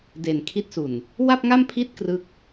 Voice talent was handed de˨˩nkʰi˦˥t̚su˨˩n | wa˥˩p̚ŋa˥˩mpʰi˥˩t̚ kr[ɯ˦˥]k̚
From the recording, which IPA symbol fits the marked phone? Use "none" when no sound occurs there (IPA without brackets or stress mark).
ɯ˦˥